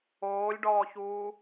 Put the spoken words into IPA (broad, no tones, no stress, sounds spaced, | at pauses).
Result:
oː lʲ ɖ ɔː ç uː